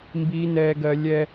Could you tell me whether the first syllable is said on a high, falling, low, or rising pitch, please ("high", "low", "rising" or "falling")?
high